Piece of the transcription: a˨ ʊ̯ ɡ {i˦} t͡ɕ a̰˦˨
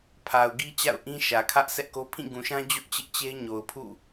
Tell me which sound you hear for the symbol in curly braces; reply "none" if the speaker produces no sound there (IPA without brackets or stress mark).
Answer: i˦